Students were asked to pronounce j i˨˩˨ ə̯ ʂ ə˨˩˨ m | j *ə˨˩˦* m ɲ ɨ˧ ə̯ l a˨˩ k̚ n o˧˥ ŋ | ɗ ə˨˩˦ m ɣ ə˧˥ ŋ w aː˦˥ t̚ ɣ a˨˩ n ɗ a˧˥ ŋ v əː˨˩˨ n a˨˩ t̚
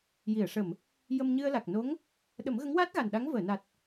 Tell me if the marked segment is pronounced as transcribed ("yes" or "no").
no